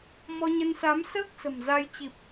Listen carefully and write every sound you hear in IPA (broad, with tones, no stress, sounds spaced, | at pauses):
m ɔ˧ ɲ ə˧ n s a˨˦ m s əː˦˥ k̚ s ə̤˨˩ m z a˧ j t͡ɕ i˨˩ p̚